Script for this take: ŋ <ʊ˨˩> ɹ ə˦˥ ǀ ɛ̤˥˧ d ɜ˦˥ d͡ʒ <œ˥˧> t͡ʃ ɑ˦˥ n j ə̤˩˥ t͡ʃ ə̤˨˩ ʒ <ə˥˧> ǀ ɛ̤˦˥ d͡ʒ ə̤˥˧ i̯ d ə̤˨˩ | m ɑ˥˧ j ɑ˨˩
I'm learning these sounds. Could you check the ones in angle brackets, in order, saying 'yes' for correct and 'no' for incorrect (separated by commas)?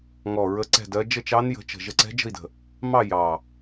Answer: no, no, yes